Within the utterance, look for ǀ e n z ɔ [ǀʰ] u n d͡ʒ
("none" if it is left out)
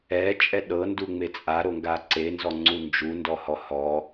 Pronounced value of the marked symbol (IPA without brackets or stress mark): ŋ͡ǀ